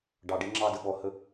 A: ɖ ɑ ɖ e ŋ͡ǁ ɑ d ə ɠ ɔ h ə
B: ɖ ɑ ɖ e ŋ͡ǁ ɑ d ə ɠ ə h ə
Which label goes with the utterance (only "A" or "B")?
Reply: A